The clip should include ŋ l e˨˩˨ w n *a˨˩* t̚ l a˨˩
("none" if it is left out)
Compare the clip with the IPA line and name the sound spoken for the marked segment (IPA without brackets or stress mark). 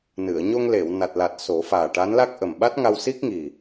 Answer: a˨˩